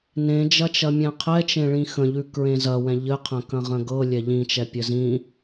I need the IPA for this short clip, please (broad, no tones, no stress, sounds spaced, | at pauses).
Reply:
n ẽ d͡ʒ ɐ t͡ʃ ɐ mʲ ɛ̃ qʰ ɛ t͡ʃ ẽ ɭ ĩ x ə̃ ʎ ʉ k ɹ ẽ z ɐ w ɛ̃ ʎ ɘ qʰ ə̃ k ɐ̃ ʁ ə̃ ɡ ɤ lʲ ɛ ʎ ĩ t͡ʃ ɛ pʲ ɘ z ĩ